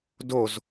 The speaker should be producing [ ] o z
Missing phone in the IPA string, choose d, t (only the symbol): d